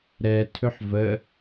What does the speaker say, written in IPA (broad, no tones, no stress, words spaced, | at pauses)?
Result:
ɾɛ tʰɵħvə